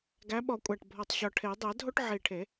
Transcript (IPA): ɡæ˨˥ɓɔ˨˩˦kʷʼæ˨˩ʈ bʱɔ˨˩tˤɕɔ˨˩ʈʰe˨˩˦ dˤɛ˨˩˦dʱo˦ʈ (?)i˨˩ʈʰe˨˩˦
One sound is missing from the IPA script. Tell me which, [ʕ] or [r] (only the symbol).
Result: ʕ